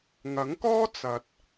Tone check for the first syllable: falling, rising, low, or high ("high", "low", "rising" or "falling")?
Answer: rising